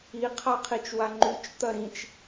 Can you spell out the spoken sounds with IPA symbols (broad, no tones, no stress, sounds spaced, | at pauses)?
i qʰ a qʰ i t͡ʃ w a ŋ͡ǃ y t͡ʃ t̪ ɐ ɾ ĩ t͡ʃ